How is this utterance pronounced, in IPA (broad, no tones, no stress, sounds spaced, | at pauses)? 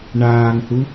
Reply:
ɳ aː ŋ h u